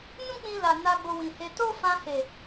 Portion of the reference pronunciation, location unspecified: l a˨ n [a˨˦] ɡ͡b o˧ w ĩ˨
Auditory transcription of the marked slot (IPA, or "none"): a˧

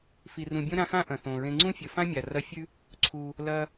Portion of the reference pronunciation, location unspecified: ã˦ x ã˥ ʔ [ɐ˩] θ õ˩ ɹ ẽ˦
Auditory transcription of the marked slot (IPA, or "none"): ɐ̃˩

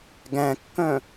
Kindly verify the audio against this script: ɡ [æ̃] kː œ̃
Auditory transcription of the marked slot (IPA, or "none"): æ̃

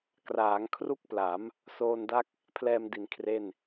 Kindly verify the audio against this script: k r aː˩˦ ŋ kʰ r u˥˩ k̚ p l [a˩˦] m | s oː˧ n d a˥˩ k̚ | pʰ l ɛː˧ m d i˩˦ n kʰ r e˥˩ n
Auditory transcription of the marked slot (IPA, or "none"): a˩˦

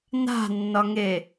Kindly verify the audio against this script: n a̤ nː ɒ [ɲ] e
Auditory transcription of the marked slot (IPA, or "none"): ŋ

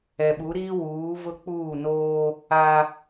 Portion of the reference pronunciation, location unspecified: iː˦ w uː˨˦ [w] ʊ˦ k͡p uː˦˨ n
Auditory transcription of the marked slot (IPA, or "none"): v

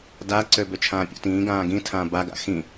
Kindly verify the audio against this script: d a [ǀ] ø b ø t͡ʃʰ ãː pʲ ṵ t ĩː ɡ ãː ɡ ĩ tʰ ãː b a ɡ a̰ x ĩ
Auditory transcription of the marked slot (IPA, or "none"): ǀ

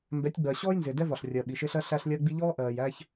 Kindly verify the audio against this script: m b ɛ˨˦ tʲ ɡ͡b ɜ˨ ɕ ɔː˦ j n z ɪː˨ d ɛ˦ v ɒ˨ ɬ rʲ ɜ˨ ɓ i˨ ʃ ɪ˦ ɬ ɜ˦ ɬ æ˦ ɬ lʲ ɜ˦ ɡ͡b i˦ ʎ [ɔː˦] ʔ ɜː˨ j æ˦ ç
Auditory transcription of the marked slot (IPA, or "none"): ɔː˦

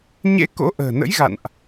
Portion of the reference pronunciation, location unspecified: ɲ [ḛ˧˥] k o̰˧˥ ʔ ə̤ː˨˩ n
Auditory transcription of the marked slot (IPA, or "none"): ḛ˧˥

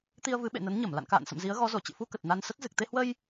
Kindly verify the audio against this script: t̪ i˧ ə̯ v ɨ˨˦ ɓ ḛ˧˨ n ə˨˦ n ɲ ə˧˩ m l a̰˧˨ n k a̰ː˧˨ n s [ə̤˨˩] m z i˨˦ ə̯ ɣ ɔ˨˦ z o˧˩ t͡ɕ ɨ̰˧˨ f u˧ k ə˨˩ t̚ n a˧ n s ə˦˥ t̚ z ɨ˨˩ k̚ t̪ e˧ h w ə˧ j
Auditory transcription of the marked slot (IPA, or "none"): ə̰˧˨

